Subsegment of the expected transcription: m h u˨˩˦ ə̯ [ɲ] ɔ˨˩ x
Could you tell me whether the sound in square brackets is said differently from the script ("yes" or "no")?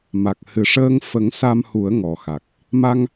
yes